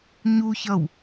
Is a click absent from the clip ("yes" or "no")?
yes